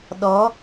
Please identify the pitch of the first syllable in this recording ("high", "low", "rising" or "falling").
rising